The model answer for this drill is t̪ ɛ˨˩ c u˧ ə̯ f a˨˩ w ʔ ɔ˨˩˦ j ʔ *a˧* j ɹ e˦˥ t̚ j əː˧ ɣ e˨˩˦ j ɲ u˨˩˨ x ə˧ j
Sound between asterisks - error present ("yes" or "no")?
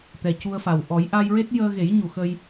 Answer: no